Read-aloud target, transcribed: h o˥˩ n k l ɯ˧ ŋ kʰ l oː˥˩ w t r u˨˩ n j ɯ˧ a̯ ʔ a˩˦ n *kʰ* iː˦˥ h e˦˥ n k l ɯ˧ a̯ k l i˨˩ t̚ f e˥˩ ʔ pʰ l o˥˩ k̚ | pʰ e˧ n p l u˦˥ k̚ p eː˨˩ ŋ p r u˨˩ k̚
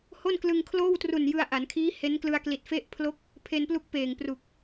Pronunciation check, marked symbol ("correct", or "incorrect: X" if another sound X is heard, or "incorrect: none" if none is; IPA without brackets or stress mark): correct